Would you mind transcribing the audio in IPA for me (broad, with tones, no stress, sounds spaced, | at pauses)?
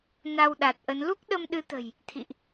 n a˧ w ɗ a˨˩ t̚ ʔ ə˨˦ n l u˦˥ k̚ ɗ ə˧ m ɗ ɨ˨˦ t̪ ə̤˨˩ j | t̪ʰ ḭ˧˨ ʔ